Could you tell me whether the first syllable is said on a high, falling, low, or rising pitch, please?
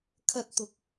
high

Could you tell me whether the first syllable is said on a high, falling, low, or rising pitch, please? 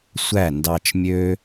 falling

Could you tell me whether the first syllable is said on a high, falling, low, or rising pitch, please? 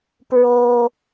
low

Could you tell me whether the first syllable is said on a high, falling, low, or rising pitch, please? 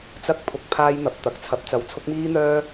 high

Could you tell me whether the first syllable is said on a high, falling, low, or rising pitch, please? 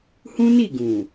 high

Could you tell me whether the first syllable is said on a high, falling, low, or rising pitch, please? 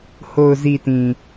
low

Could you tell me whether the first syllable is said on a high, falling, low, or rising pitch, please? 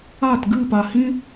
falling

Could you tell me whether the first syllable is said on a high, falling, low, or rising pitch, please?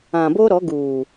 low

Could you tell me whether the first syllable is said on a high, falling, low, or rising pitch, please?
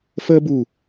high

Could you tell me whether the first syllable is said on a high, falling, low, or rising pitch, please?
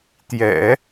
low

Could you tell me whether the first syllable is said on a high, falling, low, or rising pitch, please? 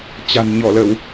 low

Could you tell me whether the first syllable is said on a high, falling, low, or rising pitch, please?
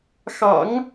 low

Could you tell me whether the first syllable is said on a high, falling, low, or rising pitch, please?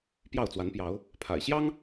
falling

